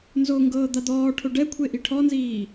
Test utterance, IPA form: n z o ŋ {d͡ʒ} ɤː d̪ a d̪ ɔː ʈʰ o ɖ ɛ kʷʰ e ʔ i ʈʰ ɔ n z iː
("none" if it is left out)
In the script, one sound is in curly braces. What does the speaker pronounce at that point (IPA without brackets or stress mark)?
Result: ɡ